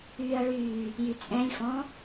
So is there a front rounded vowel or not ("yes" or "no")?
yes